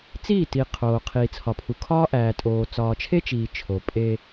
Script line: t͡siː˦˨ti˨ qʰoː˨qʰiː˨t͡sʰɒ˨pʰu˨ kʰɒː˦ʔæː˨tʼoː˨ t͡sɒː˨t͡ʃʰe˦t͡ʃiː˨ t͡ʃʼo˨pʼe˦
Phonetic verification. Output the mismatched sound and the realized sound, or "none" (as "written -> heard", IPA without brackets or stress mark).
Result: t͡ʃʼ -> t͡ʃʰ